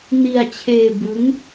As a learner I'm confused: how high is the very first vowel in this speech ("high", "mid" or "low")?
high